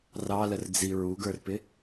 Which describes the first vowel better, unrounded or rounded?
unrounded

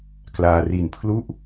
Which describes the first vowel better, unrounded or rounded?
unrounded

